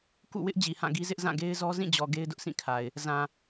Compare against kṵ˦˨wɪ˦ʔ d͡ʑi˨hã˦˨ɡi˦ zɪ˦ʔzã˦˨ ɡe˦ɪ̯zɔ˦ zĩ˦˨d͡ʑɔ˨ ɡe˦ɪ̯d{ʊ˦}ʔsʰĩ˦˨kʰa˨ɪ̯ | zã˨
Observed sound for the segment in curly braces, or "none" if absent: ʊ˦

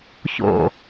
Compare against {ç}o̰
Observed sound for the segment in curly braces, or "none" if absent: ç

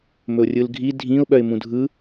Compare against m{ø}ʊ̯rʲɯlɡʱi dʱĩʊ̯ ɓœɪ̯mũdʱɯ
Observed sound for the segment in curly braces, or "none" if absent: ɵ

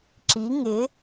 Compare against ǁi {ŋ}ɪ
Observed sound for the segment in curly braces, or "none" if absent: ŋ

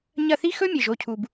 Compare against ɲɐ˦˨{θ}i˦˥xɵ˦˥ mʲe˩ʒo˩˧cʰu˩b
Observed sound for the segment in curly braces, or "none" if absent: θ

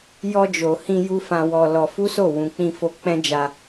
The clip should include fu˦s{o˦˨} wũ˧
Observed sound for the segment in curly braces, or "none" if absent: o˦˨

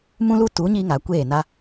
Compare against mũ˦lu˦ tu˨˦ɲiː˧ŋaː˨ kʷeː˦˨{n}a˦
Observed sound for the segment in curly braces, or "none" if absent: n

